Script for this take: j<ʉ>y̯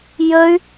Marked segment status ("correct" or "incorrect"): incorrect